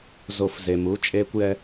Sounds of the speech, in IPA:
zo˨˩˦fze˩mu˩˧˩ t͡ʃʼeː˧kʷjɛ˧

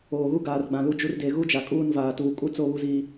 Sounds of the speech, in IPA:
oː˨ɣu˦ ɡaː˨rɡ͡bã˨ lu˦d͡ʒu˦r de˨ ɣu˦d͡ʒa˨kʼuː˦˨n vaː˨tuː˨ kʼu˦t͡so˦˨ βu˦ziː˦

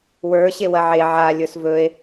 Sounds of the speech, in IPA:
wə˞ ɕewɐʕe ʕa lʲə˞svɵe̯

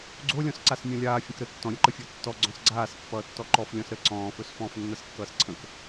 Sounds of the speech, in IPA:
ɡ͡ǀolʲɔ̃sǀas mʲɔ̃lʲaː fʲə̃kɾə tːɔ̃ɾʲəǃəfʲo tːɔ ɡ͡ǀɔ̃sɡ͡ǀaːspːʌːtːɔ ǃɔflʲɔ̃s ɾə ǀɔ̃ːfɵs fɔ̃ːfnːʌskːʌːsǀʰə̃k

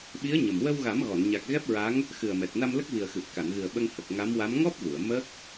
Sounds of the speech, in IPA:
ɓi˧˥ə̯ ɲə˨˩m wə˧wɣa˨˩˦mɣɔ˨˩˨nɲa˨˩k̚ ɣɛ˦˥p̚ɹa˧˥ŋ | xɨ˨˩ə̯mɛ˨˩t̚ na˧mlə˦˥k̚vi˨˩ə̯xɨ˨˩p̚ ka˨˩˨nɣɨ˨˩ə̯ ɓə˧ŋhə˨˩k̚ ŋa˧˥mwa˧˥m ŋɔ˦˥p̚vu˨˩˨ə̯ mə˦˥k̚

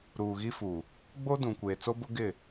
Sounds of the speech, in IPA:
ɾuː˨ɣi˦ fu˨ | ɡ͡bo˦ dũ˨kʷeː˨ t͡so˦bʊ˦ɡɪ˦˨

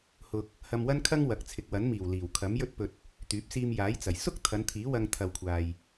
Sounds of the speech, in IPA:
hʊ˧k̚ | hɐ˧mwɐ˥nkʰɐ˥ŋ wɐ˨˥k̚t͡sʰɪ˨k̚wɐ˨˥nmiː˨˩w liː˨˩wkʰɐ˨˥mjɵ˥t̚pɵ˧t̚ | t̪yː˨˥p̚siː˧mjaː˨˥jt͡sɐ˨˩j sʊ˥k̚ t̪ʰɐ˨˧nt̪ʰiː˨˥ wɐ˧ŋ t̪ʰɐ˨wkʷʰaː˨j

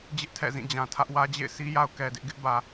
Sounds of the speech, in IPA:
d͡ʑɪ˦ʔ tʰɛ̰˦˨zĩ˦˨d͡ʑã˨tʰä˦ʔ wä˦d͡ʑḛ˦˨ɪ̯ si˦ ja˦ʊ̯kɛ˨dɪ˦ʔ ɡɪ˦ʔbä˨

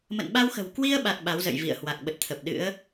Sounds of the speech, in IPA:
mə̰˧˨nɓa˧wxə̤˨˩w kwi˧ə̯ɓa˨˩t̚ ɓa˨˦wzə̰˧˨jvḭ˧˨ə̯ hwa˨˩k̚ɓə˨˩t̚t̪ʰə˨˩p̚ɗɨ̰˧˥ə̯

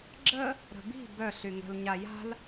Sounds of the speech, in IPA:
ɡ͡ǁə | ɾə̤bi̤ bœ ɬyŋə̤l ɲaja̤l

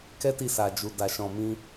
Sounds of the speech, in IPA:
kɛ˦ti˧sa˨d͡ʒu˨ da˨ʃɔ̃˨mĩ˧

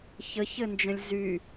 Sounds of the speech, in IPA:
çəçɘnd͡ʒə̃lʲ zy

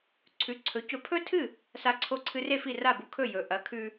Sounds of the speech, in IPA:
ǀʰʉ˩˥ǀʰɵ˩˥cɵ˧pʰɵ˥ tʰɨ˥˩ | sa˧ǀʰo˧ǀʰɨ˧re˥˩ fi˥˩ra˥˩bu˧kʰɵ˥˩ jɵ˩ ʔɐ˩˥kʰʉ˧

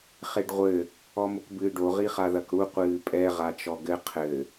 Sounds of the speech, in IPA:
χeɖʁʷɘ | ɔmokbɨːɖo ʁiχaðɐkɽu qʷɨːpʼɛ ʁat͡ʃɔɡɘ qʰɘ

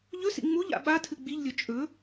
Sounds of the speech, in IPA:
ʎɵsḭ ŋ͡muʎa̰ ɓatʰɨ ɡ͡biʎlʲɵ t͡ʃʼɵ

